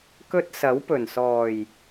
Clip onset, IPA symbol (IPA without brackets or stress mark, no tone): k